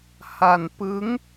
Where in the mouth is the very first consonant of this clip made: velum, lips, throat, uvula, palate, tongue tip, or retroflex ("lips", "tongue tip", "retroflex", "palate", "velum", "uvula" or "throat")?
throat